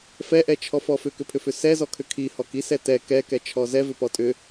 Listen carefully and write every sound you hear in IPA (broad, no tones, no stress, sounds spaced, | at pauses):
f ɛ ʔ ɛ t͡ʃʰ ɔ f ɔ f ʏ k ʏ pʰ ʏ f ʏ s ɛ z ɔ kʰ ʏ kʰ i h ɔ k i s ɛ t ɛ k ɛ k ɛ t͡ʃʰ ɔ z ɛ v ʏ p ɔ tʼ ʏ